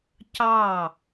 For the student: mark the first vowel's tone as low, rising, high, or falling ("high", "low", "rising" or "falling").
falling